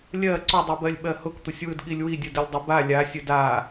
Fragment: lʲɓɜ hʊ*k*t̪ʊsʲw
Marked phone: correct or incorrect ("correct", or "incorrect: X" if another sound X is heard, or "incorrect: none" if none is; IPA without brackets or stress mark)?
correct